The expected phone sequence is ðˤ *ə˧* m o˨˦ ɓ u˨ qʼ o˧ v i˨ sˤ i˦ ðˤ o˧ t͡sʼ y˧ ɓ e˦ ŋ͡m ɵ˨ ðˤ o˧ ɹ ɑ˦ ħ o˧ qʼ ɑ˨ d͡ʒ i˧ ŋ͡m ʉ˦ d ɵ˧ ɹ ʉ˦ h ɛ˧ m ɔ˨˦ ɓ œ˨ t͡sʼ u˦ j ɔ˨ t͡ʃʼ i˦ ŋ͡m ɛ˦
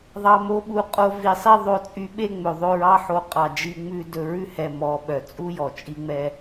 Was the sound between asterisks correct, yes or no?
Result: no